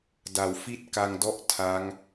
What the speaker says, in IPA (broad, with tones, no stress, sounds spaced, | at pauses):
d a˨˩ w f i˥˩ t̚ k a˧ ŋ d ɔ˥˩ ʔ tʰ a˦˥ ŋ